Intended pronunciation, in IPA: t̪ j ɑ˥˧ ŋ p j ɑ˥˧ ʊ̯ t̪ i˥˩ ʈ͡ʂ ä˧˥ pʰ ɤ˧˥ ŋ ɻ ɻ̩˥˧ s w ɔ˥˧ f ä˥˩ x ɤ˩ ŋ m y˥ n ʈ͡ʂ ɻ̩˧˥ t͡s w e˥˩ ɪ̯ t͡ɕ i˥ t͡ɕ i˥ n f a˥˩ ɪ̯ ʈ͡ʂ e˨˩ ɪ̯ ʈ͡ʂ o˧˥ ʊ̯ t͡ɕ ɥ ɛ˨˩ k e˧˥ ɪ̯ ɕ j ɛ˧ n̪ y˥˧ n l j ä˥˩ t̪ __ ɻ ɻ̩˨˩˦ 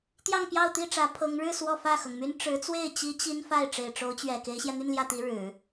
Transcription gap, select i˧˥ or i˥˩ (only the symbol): i˧˥